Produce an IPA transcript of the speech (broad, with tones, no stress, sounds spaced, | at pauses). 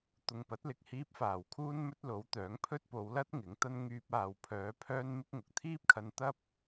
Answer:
t̪ ʊ˨ ŋ p ɐ˨˥ t̚ l ɪ˨ k̚ h iː˧ p̚ f aː˨˩ w kʰ uː˥ n m ɵ˥ t̚ l o˨˥ w t̪ œː˨˥ ŋ pʰ ɵ˥ t̚ p o˨˧ w l ɐ˥ t̚ ŋ ɪ˨˥ ŋ t̪ ɐ˥ n ŋ yː˧ p̚ aː˨ w pʰ œː˨˧ pʰ œː˥ n m ɪ˥ k̚ ŋ ʊ˨ k̚ t̪ʰ iː˥ p̚ kʰ ɐ˧ n t̪ ɐ˥ p̚